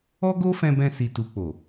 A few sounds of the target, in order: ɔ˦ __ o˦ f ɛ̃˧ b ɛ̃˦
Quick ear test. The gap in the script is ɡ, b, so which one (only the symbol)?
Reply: ɡ